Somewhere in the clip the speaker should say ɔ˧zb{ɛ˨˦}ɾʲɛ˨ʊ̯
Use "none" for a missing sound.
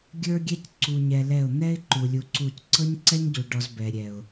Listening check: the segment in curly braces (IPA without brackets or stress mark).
ɛ˨